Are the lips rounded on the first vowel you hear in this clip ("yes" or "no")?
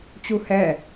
yes